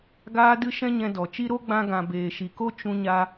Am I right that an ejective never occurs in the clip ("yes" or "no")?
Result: yes